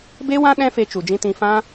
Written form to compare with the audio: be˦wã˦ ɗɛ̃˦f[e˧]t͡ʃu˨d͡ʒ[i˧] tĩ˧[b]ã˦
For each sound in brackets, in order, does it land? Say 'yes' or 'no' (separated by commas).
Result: yes, no, no